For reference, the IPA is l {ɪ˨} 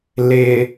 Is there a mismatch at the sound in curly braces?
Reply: no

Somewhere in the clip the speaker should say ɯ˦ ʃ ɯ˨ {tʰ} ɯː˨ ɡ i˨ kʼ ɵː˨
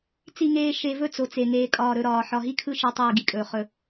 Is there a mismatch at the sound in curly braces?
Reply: yes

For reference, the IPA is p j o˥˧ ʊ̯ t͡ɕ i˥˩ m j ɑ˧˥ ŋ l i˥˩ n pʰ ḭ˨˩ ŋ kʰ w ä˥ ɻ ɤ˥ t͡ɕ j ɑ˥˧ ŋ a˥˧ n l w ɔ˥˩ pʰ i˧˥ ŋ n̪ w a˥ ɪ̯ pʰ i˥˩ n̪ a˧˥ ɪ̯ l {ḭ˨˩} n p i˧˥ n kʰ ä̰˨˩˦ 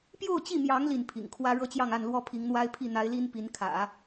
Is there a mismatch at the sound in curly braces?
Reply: yes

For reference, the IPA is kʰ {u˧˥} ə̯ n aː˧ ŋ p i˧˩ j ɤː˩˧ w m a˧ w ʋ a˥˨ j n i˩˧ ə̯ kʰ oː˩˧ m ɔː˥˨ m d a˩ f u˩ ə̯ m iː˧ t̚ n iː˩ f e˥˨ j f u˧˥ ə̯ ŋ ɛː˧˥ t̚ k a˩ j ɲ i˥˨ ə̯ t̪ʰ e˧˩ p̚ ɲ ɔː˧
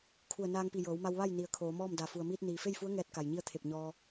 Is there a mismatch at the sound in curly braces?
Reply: yes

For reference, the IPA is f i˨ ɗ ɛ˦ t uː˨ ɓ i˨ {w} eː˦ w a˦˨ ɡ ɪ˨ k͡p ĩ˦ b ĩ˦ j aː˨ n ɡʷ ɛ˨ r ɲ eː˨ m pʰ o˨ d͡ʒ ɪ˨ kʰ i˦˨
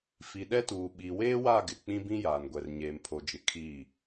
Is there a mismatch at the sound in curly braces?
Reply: no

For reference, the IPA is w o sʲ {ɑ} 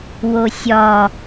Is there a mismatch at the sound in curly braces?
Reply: yes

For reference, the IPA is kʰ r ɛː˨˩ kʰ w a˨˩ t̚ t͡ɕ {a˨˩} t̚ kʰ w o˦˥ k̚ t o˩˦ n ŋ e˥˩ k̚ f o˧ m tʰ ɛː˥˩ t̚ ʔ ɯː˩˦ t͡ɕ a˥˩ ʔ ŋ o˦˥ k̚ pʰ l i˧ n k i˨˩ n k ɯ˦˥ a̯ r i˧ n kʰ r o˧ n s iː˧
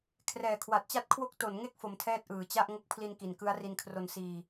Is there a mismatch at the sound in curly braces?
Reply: yes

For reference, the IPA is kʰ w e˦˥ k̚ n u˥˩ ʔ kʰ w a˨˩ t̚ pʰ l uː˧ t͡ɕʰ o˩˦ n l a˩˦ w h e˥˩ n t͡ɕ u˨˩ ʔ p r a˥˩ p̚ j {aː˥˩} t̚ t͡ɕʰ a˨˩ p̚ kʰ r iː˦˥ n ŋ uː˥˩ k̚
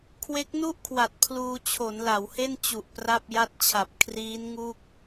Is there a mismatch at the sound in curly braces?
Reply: yes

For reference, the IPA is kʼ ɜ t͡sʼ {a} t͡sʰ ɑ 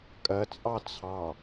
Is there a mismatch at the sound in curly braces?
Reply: yes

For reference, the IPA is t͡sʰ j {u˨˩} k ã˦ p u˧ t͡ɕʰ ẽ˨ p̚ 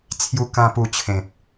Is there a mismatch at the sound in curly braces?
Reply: yes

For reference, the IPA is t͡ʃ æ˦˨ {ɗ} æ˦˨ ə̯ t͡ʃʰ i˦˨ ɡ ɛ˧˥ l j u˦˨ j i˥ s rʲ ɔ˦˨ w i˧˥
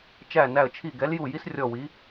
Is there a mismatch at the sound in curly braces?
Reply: yes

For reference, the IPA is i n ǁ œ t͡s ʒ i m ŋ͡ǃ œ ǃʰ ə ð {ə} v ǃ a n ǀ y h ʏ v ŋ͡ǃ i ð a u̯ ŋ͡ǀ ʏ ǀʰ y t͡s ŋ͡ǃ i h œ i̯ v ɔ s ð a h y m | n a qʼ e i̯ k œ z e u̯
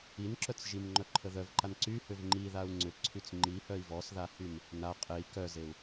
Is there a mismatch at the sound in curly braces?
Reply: yes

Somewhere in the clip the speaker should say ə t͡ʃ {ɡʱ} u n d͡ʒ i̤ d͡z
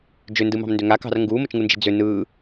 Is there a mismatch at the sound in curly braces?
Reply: yes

